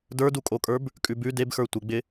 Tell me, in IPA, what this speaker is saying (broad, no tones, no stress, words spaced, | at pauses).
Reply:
də˞dukʼokʼə˞b | kʼʉbʉ debxə˞ tʷɪɡ͡bɪ